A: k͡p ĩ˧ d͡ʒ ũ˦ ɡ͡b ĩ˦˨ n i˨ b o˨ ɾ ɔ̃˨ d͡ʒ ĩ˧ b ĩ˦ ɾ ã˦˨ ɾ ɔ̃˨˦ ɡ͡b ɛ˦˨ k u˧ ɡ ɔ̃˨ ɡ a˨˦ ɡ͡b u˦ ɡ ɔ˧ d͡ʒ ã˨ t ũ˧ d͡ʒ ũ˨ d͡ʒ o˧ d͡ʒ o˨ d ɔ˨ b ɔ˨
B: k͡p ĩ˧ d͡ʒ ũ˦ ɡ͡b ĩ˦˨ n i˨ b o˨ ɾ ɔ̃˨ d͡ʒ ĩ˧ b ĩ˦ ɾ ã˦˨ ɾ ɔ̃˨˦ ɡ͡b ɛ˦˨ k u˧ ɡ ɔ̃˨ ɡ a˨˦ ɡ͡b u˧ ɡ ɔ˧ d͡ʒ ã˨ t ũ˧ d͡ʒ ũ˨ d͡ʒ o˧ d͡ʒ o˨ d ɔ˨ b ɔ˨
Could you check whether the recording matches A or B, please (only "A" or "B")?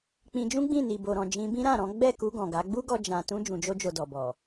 A